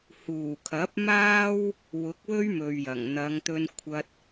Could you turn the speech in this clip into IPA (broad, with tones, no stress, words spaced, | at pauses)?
huː˨˩kʰɐ˨˥p̚maː˥w | wʊ˨˥k̚wɵ˥ɥ mɵ˨ɥjɐ˨˩ŋ n̪ɐ˨˧ŋt̪ɵ˧n kʷʰɐ˧t̚